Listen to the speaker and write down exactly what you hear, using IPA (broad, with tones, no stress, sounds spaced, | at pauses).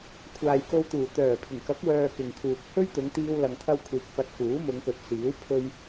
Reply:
kʷʰ aː˨ j k o˧ w t̪ uː˨˩ t̪ œː˨˩ pʰ ɪ˨˩ ŋ k ɐ˨˥ k̚ w œː˧ k ɪ˨ ŋ kʰ uː˨ k̚ h ɵ˥ ɥ t̪ ʊ˨˧ ŋ t̪ iː˧ w l ɐ˧ ŋ t̪ʰ ɐ˥ w kʷʰ iː˧ k̚ p ɐ˧ t̚ k uː˨˥ m ʊ˨˧ ŋ p ɵ˨ t̚ s iː˨˥ w pʰ ɵ˧ ɥ